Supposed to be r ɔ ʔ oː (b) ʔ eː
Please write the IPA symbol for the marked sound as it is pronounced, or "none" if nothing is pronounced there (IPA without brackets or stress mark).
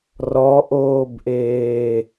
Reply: b